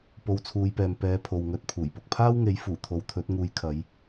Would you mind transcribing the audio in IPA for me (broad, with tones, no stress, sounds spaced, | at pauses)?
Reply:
p o˨˧ w t͡sʰ uː˨˧ j p ɛː˨ m p ɛː˨˧ pʰ o˨ w ŋ ɵ˧ t̚ pʰ uː˨˩ j p ʊ˨ k̚ pʰ aː˥ w ŋ e˨˥ j f uː˨˩ t̪ʰ o˨˧ w t̪ʰ ɵ˨˥ t̚ ŋ uː˧ j kʰ ɐ˨˧ j